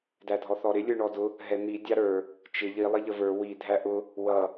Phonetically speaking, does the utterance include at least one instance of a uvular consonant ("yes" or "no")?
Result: no